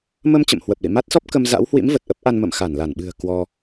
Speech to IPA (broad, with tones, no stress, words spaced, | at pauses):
mə˧m t͡ɕə̰˧˨mhwə˨˩p̚lḭ˧˨ ma˦˥t̚sɔ˦˥p̚ kə˧m za̰˧˥whwḭ˧˥m və˨˩t̚ʔə˦˥p̚ʔa˧n mə̰˧˨mxa˧˩nla˧˩nɓɨ̤˨˩ə̯ kwɔ˧